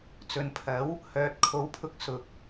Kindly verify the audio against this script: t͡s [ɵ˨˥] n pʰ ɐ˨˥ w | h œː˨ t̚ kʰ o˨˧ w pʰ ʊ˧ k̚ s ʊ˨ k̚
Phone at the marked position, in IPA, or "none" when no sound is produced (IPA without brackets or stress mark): ɵ˨